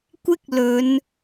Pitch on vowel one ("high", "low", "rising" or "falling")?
high